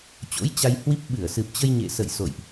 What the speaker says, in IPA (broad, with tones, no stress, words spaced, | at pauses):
t͡ɕo̰˧˥jt͡ɕa˧j hwi˦˥p̚ ɓɨ˧˩ə̯sɨ˨˩p̚ t͡ɕə˧jɲḛ˧˨sə̰˧˨j so̰˧˨jʔ